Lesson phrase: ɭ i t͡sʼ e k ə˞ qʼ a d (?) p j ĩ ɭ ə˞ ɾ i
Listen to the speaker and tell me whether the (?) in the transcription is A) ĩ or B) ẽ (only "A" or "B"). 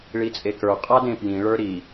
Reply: B